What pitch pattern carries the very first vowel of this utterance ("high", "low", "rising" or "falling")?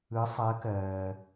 rising